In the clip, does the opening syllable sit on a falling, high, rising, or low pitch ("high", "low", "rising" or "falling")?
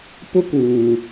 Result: high